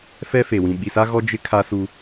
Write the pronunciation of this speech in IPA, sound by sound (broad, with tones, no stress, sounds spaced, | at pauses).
f ɛ˦ f e˨ w ĩ˨ ɓ i˨ s a˦ ɣ ɔ˦ d͡ʒ ɪ˦ kʰ a˦ s u˦